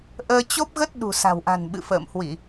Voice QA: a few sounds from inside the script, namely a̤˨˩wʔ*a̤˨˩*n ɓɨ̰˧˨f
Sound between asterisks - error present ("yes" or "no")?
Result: no